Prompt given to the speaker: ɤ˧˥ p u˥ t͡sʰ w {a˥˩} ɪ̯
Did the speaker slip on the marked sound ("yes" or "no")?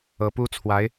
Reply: yes